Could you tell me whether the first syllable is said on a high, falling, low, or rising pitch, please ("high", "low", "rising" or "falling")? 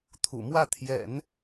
low